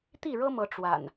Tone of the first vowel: falling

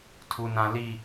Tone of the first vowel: low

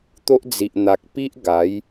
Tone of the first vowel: high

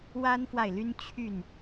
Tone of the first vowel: high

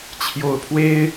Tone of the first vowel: low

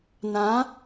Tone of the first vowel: rising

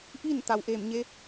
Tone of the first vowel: falling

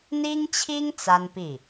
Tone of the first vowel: high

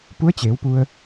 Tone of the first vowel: rising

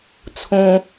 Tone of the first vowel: low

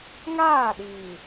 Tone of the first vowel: falling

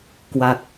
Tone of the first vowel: low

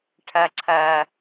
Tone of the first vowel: high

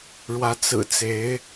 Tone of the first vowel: rising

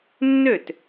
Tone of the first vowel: falling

